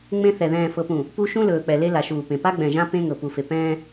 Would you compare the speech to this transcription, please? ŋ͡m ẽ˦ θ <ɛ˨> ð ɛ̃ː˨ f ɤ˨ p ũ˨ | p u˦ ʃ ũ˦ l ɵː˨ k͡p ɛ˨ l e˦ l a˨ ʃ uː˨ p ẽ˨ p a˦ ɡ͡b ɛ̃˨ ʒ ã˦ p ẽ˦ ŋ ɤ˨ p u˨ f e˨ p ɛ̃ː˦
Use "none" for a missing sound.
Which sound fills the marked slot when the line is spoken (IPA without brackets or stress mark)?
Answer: ɛ˨